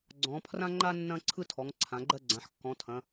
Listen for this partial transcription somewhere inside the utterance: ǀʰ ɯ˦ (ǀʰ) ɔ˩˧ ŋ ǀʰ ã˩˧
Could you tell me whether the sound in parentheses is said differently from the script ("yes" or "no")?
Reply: yes